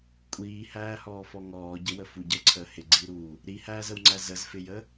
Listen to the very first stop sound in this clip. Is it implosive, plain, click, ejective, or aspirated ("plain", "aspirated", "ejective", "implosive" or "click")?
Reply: ejective